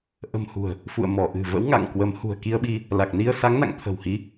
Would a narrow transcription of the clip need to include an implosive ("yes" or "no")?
yes